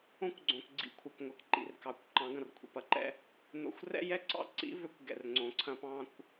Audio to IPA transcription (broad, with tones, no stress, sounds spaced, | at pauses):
õ˦ kʷ ɡ͡ǀ õ˨ k ɡ͡ǀ ḭ˨ kʷʰ ɐ˨ k ŋʷ ɪ˨ k ǃ ḭ˨ r k ɑ˨ kʷ ǃ ɑ̃˨˦ ɡ ɐ̃˨ r kʷʰ ḭ˨ p ɐ˦ ǃ ɛ̰˦ | n o̰˨ xʷ r ɛ̰˦ j ɛ˦ ǀ ɑ̰˦ ǀ ḭ˦ v ø˦ kʷ ɡ ɛ̰˨ r ŋ͡ǀ õ˨ ǀʰ ɐ̃˦ p ɑ̃˦ kʷ